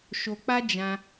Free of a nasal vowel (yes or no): no